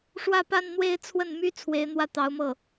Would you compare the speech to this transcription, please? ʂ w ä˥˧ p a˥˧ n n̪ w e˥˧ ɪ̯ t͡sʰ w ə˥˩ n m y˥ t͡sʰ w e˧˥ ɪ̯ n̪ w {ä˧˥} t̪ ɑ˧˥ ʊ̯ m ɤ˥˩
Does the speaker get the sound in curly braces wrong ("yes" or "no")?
yes